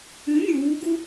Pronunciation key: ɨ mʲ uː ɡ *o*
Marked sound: incorrect: u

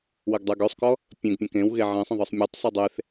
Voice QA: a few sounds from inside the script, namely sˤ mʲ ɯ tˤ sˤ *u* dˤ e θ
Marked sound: incorrect: ɯ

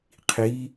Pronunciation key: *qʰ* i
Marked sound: correct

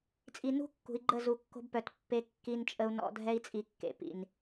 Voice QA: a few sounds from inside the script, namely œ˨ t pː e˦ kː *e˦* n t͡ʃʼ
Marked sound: incorrect: i˦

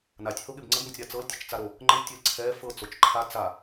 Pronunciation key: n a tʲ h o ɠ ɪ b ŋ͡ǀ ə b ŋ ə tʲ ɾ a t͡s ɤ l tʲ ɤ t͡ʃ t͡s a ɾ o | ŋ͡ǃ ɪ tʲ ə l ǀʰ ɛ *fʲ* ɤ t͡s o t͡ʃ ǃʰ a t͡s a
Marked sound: incorrect: f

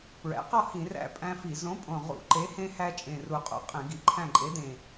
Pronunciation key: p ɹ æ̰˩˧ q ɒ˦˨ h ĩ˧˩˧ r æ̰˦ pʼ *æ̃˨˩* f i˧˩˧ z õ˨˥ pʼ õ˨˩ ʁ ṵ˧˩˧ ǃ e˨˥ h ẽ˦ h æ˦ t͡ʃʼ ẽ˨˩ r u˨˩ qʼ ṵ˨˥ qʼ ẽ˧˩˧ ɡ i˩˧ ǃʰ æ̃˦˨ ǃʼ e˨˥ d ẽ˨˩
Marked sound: incorrect: æ̃˦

